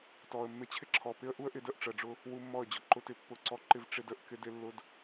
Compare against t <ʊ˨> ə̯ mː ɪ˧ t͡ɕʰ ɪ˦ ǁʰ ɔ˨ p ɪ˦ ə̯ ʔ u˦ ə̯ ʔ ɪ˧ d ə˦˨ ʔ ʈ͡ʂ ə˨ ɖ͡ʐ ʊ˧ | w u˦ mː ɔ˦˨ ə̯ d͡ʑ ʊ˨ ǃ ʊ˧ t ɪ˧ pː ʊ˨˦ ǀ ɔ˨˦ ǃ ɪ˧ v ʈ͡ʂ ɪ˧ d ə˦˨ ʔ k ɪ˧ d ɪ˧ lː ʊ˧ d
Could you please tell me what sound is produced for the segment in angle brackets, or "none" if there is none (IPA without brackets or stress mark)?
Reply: ɔ˨